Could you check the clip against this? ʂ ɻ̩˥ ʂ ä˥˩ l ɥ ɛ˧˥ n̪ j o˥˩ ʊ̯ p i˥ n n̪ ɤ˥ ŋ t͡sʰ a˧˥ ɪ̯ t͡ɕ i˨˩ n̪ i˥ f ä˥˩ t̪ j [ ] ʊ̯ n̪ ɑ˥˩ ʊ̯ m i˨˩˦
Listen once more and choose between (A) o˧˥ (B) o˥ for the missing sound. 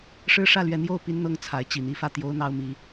B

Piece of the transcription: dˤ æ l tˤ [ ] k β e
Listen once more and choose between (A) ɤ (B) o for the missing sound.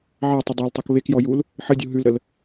A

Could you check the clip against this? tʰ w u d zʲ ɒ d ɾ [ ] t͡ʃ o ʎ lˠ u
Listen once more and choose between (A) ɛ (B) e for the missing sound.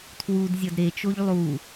B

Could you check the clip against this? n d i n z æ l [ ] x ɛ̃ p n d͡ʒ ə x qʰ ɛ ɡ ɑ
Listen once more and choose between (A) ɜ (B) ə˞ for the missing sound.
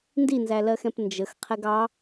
A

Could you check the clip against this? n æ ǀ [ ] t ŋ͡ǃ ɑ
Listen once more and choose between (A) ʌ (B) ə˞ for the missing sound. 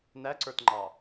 B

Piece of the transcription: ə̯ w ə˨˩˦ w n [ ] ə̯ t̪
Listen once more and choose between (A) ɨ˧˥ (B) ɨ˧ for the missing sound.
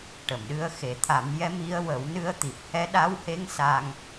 A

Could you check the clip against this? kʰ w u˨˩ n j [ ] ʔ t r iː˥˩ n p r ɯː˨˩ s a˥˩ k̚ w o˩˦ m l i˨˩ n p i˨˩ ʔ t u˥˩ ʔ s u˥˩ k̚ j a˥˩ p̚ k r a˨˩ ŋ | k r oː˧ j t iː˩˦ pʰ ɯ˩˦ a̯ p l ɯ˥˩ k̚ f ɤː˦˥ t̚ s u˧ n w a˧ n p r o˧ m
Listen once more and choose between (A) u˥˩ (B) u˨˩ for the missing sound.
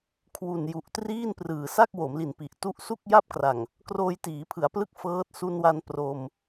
B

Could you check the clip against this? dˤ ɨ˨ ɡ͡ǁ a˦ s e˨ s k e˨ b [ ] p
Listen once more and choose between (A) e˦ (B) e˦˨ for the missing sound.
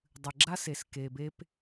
A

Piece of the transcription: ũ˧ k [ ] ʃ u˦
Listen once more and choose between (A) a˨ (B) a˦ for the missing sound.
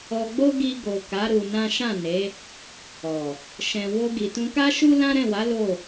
B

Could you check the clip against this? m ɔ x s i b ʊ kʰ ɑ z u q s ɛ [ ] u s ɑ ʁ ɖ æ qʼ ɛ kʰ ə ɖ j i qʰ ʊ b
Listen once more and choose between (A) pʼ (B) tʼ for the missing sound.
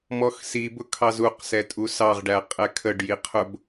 B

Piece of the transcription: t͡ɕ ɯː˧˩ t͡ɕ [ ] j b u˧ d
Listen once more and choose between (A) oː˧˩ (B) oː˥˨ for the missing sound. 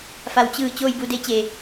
B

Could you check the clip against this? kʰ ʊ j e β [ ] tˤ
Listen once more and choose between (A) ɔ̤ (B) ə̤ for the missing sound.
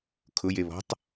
A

